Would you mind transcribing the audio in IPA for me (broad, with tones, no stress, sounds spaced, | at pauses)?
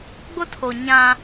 ɡ͡b ʊ˦ tʰ o˨ ɲ ã˦